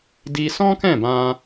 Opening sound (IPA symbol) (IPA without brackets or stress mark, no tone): d